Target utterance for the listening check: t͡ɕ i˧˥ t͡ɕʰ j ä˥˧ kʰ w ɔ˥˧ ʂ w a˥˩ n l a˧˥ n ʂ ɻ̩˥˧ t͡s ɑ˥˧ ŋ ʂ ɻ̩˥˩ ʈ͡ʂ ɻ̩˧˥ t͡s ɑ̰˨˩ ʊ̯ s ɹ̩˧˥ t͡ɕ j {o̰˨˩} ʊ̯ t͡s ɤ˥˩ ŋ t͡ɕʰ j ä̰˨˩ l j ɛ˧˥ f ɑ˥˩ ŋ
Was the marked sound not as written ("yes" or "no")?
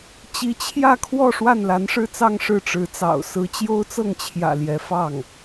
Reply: yes